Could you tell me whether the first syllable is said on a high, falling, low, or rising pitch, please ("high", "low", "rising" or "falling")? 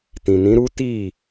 low